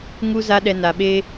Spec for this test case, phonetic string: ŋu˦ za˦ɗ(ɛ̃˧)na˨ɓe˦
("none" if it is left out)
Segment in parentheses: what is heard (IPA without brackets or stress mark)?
ɛ˧